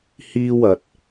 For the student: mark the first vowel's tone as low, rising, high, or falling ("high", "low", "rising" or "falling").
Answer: high